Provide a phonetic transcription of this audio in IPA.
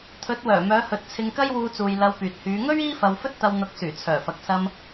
t̪ʰ ɵ˨˥ t̚ w œː˨˩ m œː˨˧ h ɵ˨ t̚ t͡sʰ ɪ˧ ŋ k ɐ˥ j w uː˧ t͡s uː˨ j l ɐ˧ w p yː˨ t̚ h yː˨˧ ŋ ɵ˥ ɥ iː˥ f ɐ˧ w f ɵ˥ t̚ t̪ ɐ˧ w n̪ ʊ˨˥ k̚ s yː˨˩ t͡sʰ œː˨˩ f ɐ˨ k̚ s ɐ˧ m

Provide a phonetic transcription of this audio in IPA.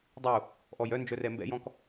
dˤ u | ʔ ɔ j œ n d͡ʒ œ r ɛ m b ɛ̰ j ɔ̃ k

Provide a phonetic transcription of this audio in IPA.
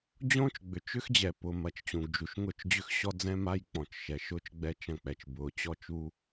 d͡ʑ õː˦ t͡ʃ ɡ͡b ʏ˨ t͡ʃ ʏ˦ x d͡ʑ ɛ˨ p ʊ˨ m ɐ˨ t͡ʃ t͡ɕ ũ˨ ɡ d͡ʒ u˨ ʃ ŋ ʊ˦˨ t͡ʃ d͡ʑ ʏ˦ x ɕ ɔ˦ d͡z ɛ̃˦ m a˦ j k͡p ɔ̃˨ t͡ʃ ʃ ɛ˨ ʃ ʊː˦ t͡ʃ ɡ͡b ɛ˦ t͡ʃ ɐ̃˦˨ k͡p ɛ˨ t͡ʃ b ʊː˨ t͡ɕ ɔ˦ t͡ʃ u˦

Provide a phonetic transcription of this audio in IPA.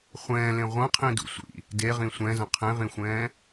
χʷ ɛ̃ː l ẽ ʁʷ ɐ̃ qʰ ĩ d ṵ sʷ ḭ | d e ʁ ĩ sʷ ɛ̃ z ɐ̃ qʰ ẽ ʁ ĩ xʷ ɛ̃ː

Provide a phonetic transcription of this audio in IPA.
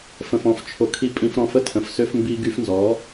f ə̃˨ f ɔ̃˨ f t͡ʃʰ o˨ kʰ i˧ pʼ ĩ˧ f ɾ ɔ̃˧ f ə˧ tʰ ə̃˨ f s ø˧ f m b i˧ ɡ y˧ f n z ɔ˨˦

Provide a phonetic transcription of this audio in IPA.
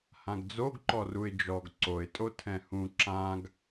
h ã ɡ d͡z o ɡ ǃ ɔ r u ɪ̯ d͡ʒ ɔ ɡ ǀ o ɪ̯ tʼ o tʰ ɛ̃ h ũ ǁ ã ɡ

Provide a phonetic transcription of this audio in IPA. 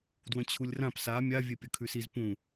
d w ə̃ t͡ɕʰ u lʲ r ã p s a mʲ a vʲ e pʲ ə kʰ ʉ s i z p ũ

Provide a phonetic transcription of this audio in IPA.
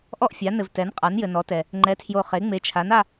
ʔ ɔ˥˧ ʔ fʲ a˩˥ n ɘ˨ v t ɛ˩˥ n qʼ a˩˥ n j ɘ˨ n ɔ˩˥ t ɛ˨ | ŋ͡ǃ ɛ˩˥ tʰ j o˨ χ e˩˥ ŋ͡m e˩˥ t͡ʃʰ a˩˥ n a˥˧

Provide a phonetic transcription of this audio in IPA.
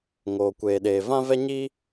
ŋ oː˨ kʷ eː˨ ɗ eː˨ v ã˦ v ɛ˦ ɲ i˦

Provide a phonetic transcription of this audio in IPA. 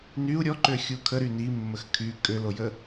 n y u̯ ɾʲ ɔ ǃ ø xʲ u kʰ ə ɾ y n i mː ə x kʰ y kʼ ø l o j ə

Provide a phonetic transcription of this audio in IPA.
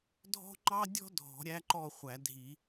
dʱ ɔ̤˥ ŋ͡ǃ ɑ˥ dʲ ɔ̤˥ dʱ ɔ̤˨˩˦ ɾʲ æ˥ ǃ ɔ˥˨ χʷ æ˨˩˦ dʱ i˨˩˦

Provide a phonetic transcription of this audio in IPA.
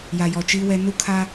j a˨ j ɔ˨ t͡ʃ iː˦ w ɛ˦ n u˦ kʰ a˦

